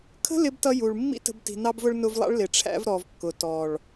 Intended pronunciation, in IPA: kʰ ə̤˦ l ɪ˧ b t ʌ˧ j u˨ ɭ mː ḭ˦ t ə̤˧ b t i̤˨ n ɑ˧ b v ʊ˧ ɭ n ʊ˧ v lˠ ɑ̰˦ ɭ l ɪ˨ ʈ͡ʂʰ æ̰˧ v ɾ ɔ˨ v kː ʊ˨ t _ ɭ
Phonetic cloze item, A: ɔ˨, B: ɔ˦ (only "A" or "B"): A